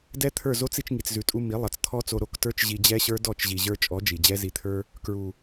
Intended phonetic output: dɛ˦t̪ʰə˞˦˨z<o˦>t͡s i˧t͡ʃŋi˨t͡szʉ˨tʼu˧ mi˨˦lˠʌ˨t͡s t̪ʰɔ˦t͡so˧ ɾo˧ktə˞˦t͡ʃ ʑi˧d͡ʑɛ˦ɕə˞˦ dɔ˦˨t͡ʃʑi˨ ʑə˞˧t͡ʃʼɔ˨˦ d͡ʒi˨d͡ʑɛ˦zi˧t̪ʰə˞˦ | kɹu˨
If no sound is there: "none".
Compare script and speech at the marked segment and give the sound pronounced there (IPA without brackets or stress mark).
o˦